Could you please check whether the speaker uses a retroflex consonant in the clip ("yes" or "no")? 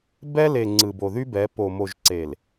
no